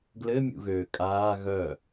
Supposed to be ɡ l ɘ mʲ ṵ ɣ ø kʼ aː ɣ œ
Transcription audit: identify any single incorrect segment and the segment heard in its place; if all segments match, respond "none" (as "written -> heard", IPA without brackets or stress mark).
none